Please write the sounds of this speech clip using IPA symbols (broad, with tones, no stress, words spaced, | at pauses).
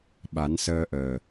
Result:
ɓa˨˩˦nsəː˧ʔəː˨˩